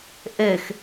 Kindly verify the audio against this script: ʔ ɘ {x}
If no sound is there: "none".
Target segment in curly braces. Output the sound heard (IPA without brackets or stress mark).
x